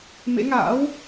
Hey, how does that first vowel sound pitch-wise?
rising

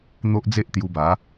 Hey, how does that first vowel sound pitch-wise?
high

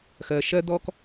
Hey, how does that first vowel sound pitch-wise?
low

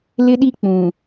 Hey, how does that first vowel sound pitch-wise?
high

